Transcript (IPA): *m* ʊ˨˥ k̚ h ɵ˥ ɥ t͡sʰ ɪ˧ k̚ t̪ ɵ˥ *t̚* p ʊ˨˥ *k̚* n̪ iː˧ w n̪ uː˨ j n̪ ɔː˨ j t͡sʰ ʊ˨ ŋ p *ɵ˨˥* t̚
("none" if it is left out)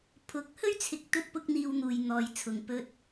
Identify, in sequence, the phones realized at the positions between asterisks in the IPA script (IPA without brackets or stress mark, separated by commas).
pʰ, t̚, k̚, ɵ˧